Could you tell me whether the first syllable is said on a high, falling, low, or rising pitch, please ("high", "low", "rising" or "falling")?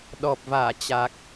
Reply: low